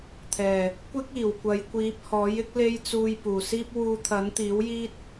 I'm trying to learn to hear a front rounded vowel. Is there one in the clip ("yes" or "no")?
no